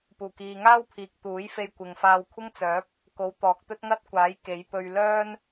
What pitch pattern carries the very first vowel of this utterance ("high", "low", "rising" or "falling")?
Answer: low